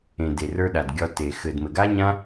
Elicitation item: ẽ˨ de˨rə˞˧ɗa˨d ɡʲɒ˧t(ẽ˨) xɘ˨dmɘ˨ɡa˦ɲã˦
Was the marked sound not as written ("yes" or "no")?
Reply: yes